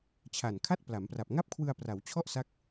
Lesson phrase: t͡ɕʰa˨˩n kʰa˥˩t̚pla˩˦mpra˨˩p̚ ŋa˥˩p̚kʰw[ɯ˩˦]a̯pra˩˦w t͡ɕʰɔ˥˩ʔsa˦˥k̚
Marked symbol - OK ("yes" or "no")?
no